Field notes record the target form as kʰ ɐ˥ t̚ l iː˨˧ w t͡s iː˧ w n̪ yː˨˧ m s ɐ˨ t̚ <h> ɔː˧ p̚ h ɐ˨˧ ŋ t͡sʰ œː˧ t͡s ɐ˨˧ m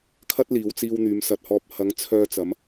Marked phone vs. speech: correct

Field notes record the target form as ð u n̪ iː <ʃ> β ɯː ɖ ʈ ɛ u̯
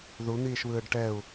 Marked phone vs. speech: correct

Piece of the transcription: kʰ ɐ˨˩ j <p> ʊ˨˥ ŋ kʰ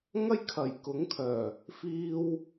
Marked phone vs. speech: incorrect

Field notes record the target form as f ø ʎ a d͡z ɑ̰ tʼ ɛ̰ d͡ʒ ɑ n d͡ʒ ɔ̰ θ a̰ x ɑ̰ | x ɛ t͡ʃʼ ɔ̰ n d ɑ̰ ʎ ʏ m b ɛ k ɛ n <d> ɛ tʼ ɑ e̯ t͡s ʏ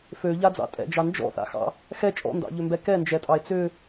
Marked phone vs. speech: incorrect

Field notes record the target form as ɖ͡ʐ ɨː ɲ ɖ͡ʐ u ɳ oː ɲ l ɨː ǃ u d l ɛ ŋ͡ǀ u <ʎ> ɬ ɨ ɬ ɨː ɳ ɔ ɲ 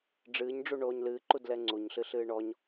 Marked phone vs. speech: incorrect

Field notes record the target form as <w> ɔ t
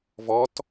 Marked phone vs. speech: incorrect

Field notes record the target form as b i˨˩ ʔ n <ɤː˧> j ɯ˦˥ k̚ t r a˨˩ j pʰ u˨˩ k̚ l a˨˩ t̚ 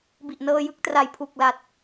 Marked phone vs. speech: correct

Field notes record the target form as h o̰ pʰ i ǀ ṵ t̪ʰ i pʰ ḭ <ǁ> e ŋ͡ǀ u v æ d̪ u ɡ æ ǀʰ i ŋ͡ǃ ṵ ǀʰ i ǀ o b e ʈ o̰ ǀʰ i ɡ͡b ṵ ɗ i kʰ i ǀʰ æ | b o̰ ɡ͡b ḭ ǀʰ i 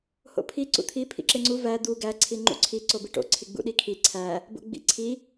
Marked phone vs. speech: correct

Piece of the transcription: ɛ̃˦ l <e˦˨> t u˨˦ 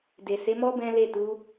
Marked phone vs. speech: correct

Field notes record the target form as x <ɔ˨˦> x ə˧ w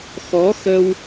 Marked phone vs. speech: correct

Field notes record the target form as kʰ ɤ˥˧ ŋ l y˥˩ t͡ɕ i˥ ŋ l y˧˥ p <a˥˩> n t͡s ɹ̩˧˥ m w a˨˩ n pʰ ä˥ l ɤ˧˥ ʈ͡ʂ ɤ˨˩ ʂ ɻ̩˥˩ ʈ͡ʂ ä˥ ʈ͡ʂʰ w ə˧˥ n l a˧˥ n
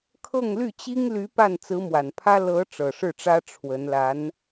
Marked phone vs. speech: correct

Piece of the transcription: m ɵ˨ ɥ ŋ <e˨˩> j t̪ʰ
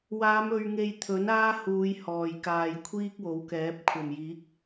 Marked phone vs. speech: incorrect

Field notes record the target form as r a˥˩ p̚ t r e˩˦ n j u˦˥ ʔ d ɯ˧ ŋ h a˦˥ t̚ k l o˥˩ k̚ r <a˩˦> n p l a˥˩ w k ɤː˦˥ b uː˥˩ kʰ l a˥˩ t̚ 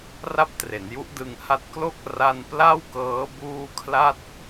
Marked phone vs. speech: incorrect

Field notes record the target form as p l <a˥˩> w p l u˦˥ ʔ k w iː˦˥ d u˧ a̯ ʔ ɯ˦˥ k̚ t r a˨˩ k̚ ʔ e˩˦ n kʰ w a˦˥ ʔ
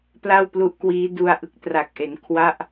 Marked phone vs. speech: correct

